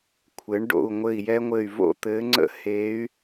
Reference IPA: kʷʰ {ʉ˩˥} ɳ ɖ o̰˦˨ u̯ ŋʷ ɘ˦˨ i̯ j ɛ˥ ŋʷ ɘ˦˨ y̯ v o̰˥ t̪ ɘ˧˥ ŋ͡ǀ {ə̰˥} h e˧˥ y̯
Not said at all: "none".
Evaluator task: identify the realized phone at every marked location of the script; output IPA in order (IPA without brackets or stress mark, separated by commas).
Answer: ɘ˩˥, ə̰˥